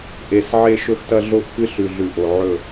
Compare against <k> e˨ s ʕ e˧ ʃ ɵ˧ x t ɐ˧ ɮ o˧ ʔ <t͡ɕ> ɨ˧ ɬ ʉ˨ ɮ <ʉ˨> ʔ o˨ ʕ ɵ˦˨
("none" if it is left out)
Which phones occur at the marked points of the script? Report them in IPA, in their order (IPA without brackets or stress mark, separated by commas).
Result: ʔ, k, ʉ˨